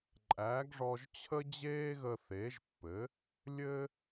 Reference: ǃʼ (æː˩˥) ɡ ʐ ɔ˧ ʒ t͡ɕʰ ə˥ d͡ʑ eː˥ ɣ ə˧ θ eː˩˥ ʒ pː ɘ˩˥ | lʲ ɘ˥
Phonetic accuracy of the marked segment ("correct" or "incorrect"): correct